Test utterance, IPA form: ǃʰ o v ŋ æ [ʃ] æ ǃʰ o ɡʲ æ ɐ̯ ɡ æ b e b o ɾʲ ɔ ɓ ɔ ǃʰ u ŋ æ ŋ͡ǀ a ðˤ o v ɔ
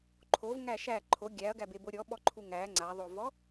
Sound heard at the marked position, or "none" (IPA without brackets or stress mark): ʃ